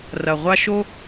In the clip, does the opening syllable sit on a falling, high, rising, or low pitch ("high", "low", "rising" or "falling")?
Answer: low